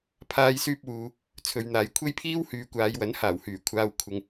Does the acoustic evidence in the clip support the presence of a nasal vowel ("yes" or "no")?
no